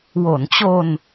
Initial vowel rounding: rounded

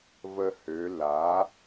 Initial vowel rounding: unrounded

